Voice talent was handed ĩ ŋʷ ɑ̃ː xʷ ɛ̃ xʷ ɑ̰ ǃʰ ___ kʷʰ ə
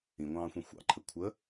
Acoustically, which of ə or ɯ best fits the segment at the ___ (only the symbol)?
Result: ə